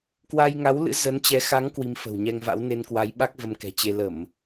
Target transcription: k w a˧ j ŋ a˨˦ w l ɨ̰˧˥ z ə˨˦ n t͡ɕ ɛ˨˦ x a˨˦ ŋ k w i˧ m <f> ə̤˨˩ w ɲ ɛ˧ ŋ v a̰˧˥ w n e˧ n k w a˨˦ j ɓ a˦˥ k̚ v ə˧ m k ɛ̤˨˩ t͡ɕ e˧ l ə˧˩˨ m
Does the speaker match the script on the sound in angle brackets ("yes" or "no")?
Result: yes